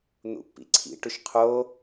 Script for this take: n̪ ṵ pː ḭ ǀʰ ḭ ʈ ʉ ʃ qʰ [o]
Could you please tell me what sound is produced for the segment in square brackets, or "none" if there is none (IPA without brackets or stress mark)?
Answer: o